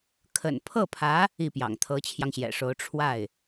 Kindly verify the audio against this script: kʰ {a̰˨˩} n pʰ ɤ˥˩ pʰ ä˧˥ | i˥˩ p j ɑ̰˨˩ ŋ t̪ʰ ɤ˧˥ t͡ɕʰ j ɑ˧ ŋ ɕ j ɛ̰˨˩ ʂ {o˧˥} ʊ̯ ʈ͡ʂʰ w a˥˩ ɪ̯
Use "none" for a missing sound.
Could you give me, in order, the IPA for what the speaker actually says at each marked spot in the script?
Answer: ə̰˨˩, o˧˥

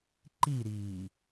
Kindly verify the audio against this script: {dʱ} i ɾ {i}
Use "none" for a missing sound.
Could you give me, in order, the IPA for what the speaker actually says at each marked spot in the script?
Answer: ǃ, iː

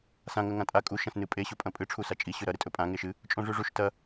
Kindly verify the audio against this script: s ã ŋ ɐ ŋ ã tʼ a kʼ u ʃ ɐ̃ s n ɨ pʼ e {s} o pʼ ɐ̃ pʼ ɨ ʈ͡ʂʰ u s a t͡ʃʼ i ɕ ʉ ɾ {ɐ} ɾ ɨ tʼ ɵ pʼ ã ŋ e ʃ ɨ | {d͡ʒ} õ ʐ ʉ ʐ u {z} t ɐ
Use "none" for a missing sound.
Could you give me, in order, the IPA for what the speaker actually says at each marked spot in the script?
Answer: ɕ, ɐ, t͡ʃʼ, ʃ

